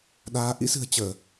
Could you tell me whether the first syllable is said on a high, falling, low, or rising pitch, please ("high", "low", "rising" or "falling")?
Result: rising